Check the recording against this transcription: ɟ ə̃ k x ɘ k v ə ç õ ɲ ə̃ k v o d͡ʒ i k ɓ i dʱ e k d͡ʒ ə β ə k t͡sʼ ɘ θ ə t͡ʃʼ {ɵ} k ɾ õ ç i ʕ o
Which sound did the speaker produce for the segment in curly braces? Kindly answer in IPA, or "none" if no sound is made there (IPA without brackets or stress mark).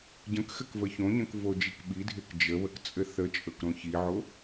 ɵ